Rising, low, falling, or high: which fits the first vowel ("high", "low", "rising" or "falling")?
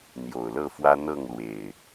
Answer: low